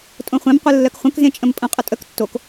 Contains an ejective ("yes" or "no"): yes